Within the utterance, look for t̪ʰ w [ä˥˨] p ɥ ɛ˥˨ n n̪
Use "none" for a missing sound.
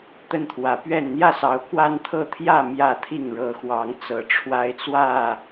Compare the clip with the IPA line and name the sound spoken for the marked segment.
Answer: ä˨˦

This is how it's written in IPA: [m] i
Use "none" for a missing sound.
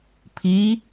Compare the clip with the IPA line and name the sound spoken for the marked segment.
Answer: pʰ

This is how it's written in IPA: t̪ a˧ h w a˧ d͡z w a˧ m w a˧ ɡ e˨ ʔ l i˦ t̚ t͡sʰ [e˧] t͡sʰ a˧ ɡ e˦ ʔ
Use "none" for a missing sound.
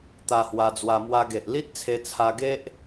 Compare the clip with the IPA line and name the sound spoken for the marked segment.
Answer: e˧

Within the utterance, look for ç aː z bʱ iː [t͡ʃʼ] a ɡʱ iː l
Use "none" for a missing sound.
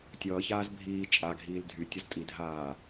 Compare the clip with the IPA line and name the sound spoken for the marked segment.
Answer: t͡ʃʼ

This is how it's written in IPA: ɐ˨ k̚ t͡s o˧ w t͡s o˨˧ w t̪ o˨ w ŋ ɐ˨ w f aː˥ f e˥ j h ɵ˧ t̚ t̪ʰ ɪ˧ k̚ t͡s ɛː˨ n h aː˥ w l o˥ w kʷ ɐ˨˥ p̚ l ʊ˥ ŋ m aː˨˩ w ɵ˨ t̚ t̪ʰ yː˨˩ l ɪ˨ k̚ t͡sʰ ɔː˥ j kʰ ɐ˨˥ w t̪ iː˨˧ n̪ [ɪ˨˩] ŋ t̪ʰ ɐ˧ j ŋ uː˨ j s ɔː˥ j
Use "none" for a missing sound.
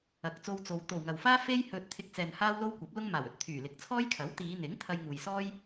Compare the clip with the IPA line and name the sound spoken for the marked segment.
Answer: ɪ˨˥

